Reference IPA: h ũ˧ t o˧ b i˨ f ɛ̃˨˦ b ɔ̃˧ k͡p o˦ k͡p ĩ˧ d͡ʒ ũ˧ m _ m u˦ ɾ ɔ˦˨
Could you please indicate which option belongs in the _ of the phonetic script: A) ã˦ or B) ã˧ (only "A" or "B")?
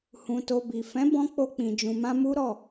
A